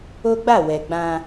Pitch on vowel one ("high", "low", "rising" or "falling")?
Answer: high